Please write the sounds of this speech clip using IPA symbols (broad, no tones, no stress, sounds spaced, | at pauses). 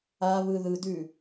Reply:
a β ɯ ð ɯ d ʉ